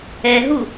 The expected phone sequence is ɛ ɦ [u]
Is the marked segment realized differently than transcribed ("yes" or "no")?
no